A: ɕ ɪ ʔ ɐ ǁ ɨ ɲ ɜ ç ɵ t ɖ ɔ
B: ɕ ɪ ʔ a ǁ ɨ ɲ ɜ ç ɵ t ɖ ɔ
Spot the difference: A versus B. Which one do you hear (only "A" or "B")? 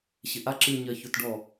B